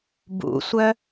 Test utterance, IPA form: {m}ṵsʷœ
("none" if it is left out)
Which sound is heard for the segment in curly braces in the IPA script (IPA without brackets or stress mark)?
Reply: b